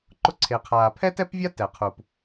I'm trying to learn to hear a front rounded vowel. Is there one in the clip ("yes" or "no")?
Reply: no